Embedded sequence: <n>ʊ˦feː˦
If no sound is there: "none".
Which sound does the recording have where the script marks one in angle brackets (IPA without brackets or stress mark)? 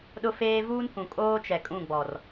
ɗ